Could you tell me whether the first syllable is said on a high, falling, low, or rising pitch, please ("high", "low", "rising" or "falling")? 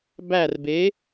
falling